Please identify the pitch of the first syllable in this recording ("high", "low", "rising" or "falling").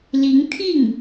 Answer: rising